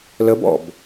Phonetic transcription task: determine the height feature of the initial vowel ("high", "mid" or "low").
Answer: mid